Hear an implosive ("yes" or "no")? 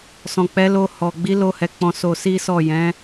no